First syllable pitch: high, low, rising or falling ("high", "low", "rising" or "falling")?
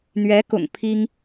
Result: rising